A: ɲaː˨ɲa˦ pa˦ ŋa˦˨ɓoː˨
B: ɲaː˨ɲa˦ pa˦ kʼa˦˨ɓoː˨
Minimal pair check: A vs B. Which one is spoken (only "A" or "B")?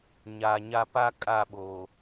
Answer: B